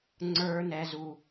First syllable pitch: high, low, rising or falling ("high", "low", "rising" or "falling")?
low